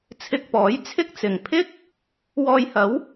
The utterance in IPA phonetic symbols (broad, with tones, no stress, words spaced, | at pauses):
t͡sʰɪ˧k̚pɔː˨˥jt͡sʰɪ˥k̚t͡sɪ˨˧ŋ pʰɪ˥k̚ | wɔː˧jhɐ˨˥w